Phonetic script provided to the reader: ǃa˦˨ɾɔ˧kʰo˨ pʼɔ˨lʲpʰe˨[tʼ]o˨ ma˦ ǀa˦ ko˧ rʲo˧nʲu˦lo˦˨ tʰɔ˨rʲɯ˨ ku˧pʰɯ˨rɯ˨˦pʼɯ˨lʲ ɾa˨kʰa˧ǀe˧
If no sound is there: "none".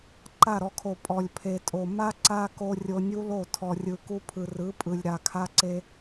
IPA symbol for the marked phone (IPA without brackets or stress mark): tʼ